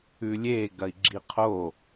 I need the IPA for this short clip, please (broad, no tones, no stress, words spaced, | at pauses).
ʉlʲe ɡɐi̯ɡ͡ǁiqʰo